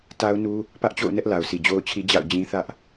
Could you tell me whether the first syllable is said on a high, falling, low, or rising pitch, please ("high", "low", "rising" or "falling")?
high